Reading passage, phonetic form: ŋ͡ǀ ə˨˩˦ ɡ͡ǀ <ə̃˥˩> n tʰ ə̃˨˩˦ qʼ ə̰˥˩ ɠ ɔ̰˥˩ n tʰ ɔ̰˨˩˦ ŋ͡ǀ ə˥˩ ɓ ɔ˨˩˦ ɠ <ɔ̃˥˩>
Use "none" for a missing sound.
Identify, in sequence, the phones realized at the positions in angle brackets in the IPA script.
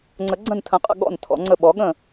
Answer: ə̃˥˩, ə̃˥˩

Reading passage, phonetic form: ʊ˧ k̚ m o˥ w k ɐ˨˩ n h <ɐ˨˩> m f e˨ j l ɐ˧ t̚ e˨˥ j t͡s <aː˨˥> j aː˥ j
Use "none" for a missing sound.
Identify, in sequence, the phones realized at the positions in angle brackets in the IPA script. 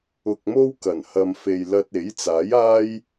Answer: ɐ˨, aː˨˥

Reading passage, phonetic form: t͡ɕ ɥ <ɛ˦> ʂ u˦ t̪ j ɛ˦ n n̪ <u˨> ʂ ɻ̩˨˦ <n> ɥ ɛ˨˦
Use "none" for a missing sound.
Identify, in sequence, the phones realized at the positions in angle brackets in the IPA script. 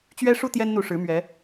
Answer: ɛ˦, u˨, m

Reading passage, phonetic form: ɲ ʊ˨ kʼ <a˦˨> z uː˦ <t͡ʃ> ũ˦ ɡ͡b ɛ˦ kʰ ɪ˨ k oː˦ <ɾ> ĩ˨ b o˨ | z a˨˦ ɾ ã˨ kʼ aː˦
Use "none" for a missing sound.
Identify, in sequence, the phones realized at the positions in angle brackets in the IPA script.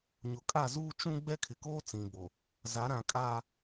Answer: a˦˨, t͡ʃ, t͡s

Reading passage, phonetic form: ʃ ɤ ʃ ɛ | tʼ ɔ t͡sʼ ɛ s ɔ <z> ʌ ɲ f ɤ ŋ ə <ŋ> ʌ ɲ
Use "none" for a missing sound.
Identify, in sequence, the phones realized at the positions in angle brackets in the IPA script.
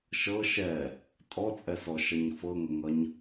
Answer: ʃ, ŋ

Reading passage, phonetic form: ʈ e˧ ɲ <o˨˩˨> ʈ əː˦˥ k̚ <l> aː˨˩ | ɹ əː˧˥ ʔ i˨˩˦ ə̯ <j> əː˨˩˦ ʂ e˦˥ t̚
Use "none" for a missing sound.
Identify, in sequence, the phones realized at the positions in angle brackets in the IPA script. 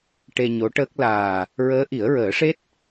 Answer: o˧˥, l, ɹ

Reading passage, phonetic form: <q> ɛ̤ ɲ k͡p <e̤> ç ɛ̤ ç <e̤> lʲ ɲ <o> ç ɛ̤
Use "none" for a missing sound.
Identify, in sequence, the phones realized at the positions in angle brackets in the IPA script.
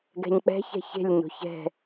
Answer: ɡ, ɛ̤, e̤, o̤

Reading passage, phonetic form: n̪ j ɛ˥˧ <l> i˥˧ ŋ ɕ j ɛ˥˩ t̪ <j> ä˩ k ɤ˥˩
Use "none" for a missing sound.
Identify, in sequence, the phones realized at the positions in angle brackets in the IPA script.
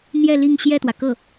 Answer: l, w

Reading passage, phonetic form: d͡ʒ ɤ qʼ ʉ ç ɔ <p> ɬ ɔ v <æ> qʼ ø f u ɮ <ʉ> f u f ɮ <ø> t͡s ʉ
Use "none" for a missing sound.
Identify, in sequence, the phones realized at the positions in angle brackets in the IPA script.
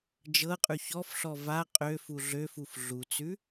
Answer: f, a, ø, u

